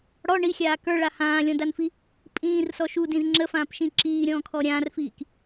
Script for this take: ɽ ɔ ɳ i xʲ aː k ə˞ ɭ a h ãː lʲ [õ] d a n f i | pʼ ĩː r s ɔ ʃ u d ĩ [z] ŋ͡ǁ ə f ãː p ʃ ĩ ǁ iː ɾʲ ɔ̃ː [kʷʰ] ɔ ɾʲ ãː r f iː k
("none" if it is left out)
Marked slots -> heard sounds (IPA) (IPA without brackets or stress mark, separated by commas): ɔ̃, z, kʰ